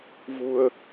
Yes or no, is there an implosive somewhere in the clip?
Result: no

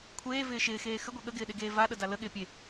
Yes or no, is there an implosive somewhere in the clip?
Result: yes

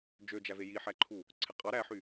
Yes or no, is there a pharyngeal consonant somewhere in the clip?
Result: yes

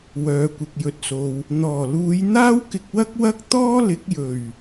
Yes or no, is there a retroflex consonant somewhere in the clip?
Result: no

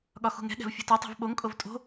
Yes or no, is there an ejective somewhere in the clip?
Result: yes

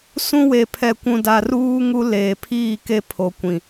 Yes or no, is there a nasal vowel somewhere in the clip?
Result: yes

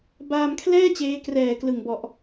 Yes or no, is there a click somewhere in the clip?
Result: no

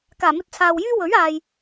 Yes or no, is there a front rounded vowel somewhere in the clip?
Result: yes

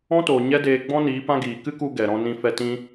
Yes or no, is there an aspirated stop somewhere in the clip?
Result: no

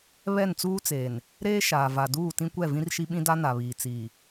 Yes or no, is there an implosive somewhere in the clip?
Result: yes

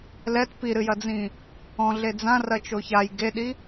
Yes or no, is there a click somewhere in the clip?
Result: no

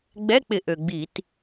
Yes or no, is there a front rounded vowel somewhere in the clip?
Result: yes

